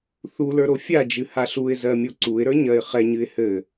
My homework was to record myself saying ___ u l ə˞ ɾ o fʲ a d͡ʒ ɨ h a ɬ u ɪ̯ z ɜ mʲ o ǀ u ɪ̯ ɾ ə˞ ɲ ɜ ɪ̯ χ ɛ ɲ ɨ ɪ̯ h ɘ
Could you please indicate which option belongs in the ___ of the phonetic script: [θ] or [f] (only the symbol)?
θ